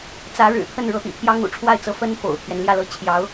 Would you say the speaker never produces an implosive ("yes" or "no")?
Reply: yes